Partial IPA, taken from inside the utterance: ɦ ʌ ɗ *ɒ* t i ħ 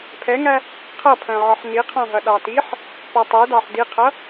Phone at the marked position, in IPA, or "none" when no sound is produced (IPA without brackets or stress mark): ɑ